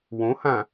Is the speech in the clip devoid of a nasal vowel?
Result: no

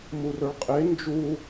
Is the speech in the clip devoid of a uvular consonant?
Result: no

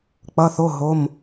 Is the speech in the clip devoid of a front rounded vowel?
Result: yes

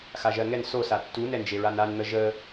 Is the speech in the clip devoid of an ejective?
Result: yes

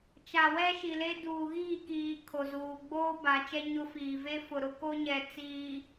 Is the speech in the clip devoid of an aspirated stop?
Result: no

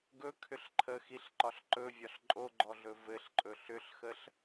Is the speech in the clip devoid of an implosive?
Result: yes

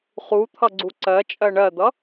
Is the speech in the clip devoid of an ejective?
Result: no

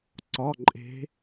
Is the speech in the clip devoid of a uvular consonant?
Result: yes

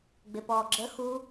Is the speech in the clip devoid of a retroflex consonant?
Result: yes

